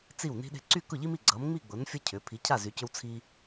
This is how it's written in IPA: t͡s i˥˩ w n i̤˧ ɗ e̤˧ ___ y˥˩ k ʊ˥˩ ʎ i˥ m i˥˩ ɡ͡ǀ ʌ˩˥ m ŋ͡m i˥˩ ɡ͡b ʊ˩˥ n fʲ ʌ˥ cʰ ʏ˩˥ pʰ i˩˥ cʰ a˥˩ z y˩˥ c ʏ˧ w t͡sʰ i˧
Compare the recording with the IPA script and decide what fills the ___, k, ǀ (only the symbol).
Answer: ǀ